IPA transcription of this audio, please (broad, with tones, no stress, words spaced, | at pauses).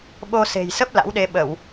ɓo˧ se̤˨˩jsə˦˥p̚ la̰˧˥wɗe˧ ɓə˧˩˨w